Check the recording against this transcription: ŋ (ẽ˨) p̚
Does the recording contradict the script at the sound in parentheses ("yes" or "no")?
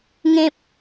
yes